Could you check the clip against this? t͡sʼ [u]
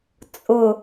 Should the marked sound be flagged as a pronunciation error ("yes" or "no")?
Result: yes